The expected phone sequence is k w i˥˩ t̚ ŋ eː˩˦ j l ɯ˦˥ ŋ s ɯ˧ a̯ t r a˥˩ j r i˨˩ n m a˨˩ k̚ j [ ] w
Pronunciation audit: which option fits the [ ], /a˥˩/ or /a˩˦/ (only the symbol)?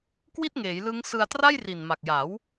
a˩˦